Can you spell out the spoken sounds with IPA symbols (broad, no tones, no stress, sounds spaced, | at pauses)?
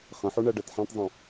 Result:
χ ə̃ ħ u ɳ ɜ ɖ ɜ t ħ ẽ tˤ zˤ ũ